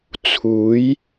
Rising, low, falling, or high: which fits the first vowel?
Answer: rising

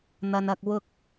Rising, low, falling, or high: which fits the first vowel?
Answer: low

